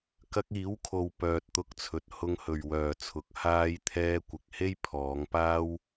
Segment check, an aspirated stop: present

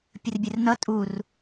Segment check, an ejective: present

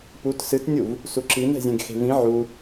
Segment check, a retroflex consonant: absent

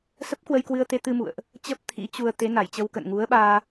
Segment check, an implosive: present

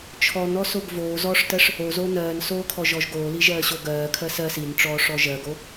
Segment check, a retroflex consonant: present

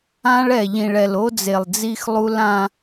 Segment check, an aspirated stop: absent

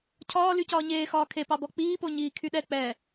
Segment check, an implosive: present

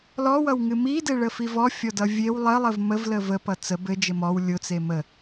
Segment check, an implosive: absent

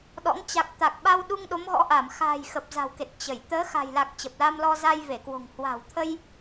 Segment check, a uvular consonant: absent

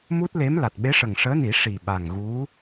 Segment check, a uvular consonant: absent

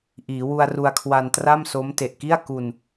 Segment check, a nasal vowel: absent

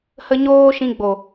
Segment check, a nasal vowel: present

